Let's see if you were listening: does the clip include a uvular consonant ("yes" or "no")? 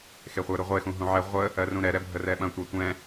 yes